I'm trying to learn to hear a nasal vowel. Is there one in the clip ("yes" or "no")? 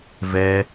no